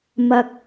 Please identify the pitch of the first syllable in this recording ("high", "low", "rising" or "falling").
low